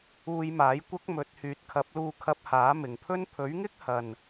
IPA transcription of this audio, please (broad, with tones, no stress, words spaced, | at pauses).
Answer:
uː˧jmaː˨˥jkʷɐ˥k̚mɵ˨˥t̚ hyː˨t̚kʰɐ˨˥p̚luː˧ kʰɐ˧p̚haː˨˥mɪ˨ŋpʰɵ˥n pʰɵ˨˥ɥŋɪ˥k̚hɐ˨n